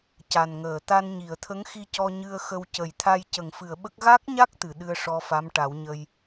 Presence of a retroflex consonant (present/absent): present